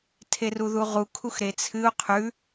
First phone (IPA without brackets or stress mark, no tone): tʰ